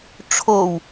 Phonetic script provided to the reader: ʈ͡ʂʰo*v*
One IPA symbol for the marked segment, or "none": w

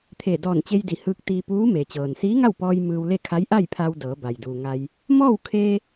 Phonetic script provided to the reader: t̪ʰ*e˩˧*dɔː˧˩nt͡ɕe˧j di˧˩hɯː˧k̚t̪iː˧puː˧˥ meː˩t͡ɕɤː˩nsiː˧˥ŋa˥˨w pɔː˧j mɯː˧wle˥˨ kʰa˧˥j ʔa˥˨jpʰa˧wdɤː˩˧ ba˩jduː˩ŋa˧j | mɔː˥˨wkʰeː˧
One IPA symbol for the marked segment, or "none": e˧˩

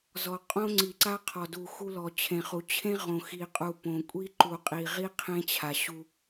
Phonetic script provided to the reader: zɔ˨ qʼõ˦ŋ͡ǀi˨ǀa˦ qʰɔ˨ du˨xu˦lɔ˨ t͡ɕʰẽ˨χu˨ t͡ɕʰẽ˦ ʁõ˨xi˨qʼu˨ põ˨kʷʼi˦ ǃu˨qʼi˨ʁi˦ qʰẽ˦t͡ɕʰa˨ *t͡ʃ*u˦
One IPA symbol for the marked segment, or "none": ɕ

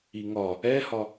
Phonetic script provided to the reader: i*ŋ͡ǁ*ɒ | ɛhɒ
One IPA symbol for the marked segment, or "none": ŋ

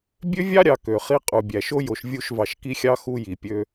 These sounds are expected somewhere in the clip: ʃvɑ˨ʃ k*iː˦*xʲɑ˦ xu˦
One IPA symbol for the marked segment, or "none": i˦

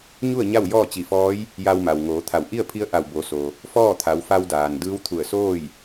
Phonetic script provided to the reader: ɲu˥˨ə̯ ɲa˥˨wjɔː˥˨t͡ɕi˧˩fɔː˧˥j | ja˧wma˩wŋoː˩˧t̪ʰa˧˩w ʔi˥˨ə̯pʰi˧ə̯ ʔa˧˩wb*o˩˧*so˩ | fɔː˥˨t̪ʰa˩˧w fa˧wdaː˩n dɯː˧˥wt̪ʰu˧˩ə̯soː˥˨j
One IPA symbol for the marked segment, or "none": o˩˧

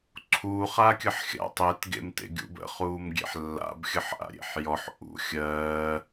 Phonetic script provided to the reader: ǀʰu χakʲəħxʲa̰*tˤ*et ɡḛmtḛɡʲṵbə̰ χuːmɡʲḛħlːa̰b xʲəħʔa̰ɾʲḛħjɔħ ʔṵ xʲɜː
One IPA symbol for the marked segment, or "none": tˤ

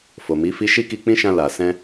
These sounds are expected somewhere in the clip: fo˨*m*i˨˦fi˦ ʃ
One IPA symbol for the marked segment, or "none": m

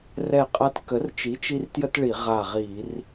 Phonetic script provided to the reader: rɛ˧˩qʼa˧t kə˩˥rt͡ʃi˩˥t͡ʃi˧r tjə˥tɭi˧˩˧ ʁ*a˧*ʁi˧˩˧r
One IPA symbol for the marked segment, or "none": a˧˩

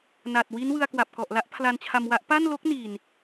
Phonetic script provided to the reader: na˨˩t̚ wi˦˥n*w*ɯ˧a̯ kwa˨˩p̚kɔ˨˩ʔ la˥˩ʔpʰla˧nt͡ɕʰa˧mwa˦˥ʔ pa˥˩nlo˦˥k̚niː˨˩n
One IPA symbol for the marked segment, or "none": w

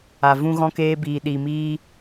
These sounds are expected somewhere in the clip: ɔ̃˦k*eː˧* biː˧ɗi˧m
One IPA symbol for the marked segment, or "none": eː˦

